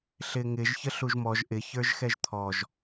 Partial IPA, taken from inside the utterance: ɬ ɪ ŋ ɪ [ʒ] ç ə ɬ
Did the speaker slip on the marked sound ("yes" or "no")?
no